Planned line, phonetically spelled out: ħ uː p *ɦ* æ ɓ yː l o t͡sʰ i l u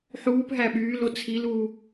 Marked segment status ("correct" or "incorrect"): correct